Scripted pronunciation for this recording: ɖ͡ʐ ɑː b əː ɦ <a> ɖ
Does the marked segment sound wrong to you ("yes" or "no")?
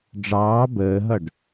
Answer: yes